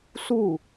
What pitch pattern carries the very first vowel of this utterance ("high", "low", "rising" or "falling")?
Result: falling